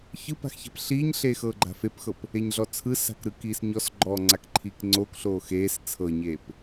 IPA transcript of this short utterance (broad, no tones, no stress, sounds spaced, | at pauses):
ç ɯ p a̤ x ç ɛ̤ p ɬ iː ɲ ɬ eː x ɤː ɡ͡ǃ a̤ f e p x ɤ p | e ɲ ɮ ɔ t͡sʰ ɯ s a̤ k ɾ ɯ k iː s ɲ ɔ s ɡ͡ǃ ɔː ŋ͡ǀ a k ǃʰ iː k ŋ͡ǀ oː k ɬ oː x eː s t͡sʰ ɤ ɲ eː p